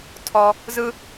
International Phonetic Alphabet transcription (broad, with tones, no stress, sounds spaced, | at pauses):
tʰ ɔ˦ | z ɯ˦